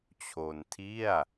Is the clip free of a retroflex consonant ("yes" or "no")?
yes